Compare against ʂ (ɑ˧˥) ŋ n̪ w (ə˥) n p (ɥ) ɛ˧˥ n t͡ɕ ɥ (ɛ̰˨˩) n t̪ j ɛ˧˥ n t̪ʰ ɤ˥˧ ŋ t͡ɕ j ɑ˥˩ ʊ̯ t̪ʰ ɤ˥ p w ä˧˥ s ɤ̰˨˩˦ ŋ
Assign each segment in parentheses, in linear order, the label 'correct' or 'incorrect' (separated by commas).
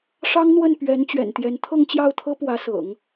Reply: incorrect, incorrect, correct, correct